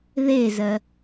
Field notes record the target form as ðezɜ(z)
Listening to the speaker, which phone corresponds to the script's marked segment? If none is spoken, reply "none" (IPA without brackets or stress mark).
none